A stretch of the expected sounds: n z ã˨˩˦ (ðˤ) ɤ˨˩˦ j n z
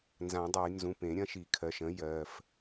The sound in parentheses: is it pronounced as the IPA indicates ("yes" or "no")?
no